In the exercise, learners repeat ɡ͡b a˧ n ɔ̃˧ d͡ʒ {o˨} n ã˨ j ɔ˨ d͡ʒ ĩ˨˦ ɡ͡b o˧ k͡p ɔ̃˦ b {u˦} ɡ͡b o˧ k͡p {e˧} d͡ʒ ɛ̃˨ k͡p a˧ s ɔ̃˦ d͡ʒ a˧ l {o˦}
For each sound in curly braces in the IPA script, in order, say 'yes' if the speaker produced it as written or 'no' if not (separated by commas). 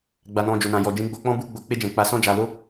yes, yes, yes, yes